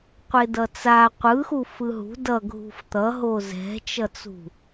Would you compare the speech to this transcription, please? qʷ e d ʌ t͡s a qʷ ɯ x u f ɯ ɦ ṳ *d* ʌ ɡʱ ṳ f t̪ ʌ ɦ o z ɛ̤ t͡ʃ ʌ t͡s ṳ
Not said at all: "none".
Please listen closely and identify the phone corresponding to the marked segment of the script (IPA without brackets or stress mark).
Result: d